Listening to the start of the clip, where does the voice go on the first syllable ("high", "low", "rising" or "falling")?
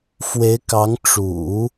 rising